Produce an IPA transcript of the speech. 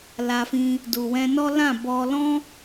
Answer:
l a˧ f ĩ˧ | d u˨ w ɛ̃˧ n ɔ˦ l ã˦˨ b ɔ˧ l ɔ̃˦

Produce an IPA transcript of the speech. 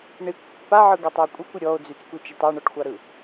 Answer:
ɳ i kʷ pː a ʕ ɯ ɡ ɑ tˤ ɔ e̯ kʷʼ ɯ kʷ i ɾʲ ɔ o̯ d͡z y t͡s kʷ i t͡ʃ ø tˤ ɑ ɳ ɔ ʈ xʷ ɑ ɾ ɯ

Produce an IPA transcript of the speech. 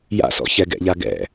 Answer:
j a̰ s ɔ̰ ç ɛ ɡ ɛ̰ ʎ a ɡ ɛ̰

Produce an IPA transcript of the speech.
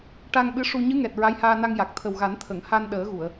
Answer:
ʈ a˧ ŋ ɓ ɨ˧˥ ʂ u˧ ɲ ɨ˧˥ ŋ ɛ˨˩ t̚ ɹ a˧˥ j h aː˧ n a˧ ŋ j a˨˩ k̚ t̪ʰ ə˨˩ w ɣ a˨˩˦ n t̪ʰ ə˨˩˨ ŋ h a˧ n ɗ əː˨˩˦ ɣ u˨˩˨ ə̯

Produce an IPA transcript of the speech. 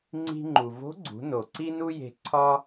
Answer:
ŋ͡ǀ i̤˧ ŋ͡ǃ u˩ v o̤˧˥ ɡ͡ǀ ṳ˩˧ n o˩ ǀ i˥ n u˥ j e̤˧ ǀʰ ɒ˥

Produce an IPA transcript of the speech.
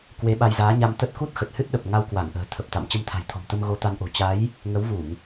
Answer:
k w e˨˦ ɓ a˧ j z aː˨˦ ɲ a˧ m t̪ ə˦˥ t̚ k u˦˥ t̚ x ə˨˩ t̚ h ɨ˦˥ t̚ ɗ ə˨˩ p̚ ŋ a˧ w k w a˧˩ ŋ ʔ ə̤ː˨˩ t̪ʰ ə˨˩ p̚ t̪ a̰˧˨ m t͡ɕ ə˧ m t̪ʰ a̤˨˩ j t̪ʰ ɔ̤˨˩ m t̪ ə˧ m ɣ o˨˦ t̪ a˨˦ n ʔ o̤˨˩ t͡ɕ a˨˦ j | ŋ ə˨˦ w v u˧˩˨ ŋ

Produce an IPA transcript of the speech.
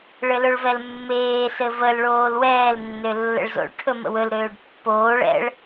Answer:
ɭ ɘ l ɵ ɭ v ɛ l mː eː s ɘ v ə l ɭ oː l w ɛː l nː ø lː ə̰ ɭ z o̰ ɭ ʈʰ ɵ m ə̰ w ɵ l ɾ øː ɖ pː oː ɭ ɛ̰ ɭ

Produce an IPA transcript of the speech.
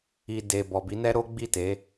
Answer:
i˨ d e˨ b ɔ˨ b i˨˦ n ɛ˦ ɾ o˦ ɡ͡b i˦˨ t e˨˦

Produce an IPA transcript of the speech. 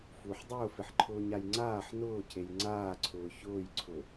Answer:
f u ħ dˤ ʊː f ɪ ħ ǃʰ ʊː ɲ a j ŋ͡ǀ aː ħ n ʊː cʰ e j ŋ͡ǀ aː ǀʰ ʊː ç ʊː j ǀʰ ʊ

